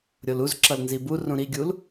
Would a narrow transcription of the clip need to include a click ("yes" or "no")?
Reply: yes